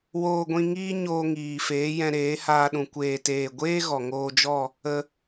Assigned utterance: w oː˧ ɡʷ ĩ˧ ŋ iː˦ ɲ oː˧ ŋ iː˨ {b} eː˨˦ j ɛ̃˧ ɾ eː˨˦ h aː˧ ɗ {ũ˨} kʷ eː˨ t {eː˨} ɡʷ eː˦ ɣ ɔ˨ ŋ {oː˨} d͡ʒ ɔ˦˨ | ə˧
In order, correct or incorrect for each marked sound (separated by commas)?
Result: incorrect, correct, correct, incorrect